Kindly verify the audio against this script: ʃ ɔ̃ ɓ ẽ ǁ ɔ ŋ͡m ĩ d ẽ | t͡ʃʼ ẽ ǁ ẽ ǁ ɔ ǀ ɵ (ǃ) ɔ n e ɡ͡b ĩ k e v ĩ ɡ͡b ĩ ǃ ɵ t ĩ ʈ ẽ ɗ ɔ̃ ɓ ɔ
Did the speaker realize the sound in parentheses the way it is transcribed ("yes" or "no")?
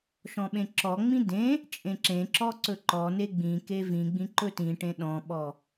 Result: yes